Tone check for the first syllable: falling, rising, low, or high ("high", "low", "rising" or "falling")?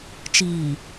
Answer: low